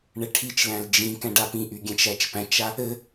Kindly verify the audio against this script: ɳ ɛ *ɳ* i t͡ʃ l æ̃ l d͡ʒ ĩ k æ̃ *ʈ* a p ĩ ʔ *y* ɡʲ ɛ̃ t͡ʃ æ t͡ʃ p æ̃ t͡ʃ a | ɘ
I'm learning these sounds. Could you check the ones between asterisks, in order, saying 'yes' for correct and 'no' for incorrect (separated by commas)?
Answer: no, no, yes